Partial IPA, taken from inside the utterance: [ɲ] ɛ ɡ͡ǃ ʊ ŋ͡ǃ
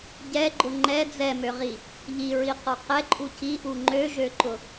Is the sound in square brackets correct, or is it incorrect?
incorrect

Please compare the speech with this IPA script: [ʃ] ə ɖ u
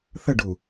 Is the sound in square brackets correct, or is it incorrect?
incorrect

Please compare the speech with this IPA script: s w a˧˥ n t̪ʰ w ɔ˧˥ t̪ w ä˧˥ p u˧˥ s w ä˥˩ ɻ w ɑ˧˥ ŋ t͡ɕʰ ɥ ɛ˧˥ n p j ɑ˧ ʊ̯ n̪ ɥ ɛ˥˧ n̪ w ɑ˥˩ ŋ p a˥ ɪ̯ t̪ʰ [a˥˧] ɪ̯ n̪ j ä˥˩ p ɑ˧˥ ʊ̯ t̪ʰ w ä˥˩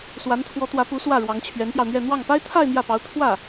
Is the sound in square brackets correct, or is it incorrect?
correct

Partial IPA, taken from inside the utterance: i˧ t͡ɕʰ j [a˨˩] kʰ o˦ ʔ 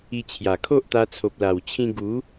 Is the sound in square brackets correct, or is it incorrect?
correct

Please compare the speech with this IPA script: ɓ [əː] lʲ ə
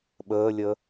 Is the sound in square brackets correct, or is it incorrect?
correct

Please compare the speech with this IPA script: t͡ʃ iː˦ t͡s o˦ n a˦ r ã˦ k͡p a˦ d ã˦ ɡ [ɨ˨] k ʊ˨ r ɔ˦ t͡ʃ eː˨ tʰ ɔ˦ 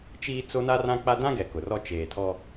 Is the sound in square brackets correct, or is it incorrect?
incorrect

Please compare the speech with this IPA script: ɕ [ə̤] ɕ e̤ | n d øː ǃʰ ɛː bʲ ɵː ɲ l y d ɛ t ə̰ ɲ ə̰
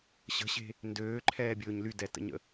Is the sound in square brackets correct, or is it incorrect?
correct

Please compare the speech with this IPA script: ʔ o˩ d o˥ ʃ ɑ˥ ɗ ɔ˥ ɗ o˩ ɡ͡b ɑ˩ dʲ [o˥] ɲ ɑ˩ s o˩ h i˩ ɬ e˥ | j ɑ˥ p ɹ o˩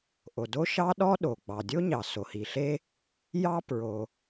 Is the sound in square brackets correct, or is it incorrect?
correct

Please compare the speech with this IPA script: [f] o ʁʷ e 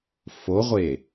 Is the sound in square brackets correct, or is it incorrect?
correct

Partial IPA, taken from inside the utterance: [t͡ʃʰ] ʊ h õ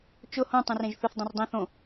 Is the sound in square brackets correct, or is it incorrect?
incorrect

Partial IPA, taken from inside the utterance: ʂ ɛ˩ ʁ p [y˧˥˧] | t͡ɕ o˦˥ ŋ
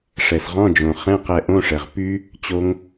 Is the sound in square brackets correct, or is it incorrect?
incorrect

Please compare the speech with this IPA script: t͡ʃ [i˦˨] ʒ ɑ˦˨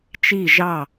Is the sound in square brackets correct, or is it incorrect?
correct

